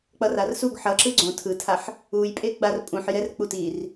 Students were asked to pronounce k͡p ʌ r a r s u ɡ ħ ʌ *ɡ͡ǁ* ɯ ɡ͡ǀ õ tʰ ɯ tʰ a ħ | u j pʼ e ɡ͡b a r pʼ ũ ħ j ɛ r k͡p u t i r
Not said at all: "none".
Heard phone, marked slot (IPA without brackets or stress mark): ǁ